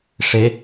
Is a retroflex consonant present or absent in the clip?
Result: present